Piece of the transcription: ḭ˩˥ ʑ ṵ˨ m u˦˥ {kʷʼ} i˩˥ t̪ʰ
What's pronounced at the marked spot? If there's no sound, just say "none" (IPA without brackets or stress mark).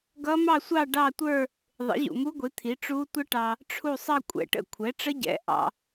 ɡʷ